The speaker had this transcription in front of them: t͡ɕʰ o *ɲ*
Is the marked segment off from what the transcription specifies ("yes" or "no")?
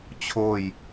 yes